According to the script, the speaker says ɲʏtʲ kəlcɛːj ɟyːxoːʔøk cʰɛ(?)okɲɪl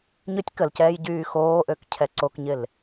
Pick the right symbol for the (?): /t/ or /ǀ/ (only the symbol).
ǀ